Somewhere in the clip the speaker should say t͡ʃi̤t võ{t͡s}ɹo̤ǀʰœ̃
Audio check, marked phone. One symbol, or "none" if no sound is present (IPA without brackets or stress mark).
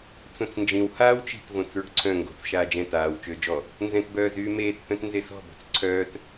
t͡s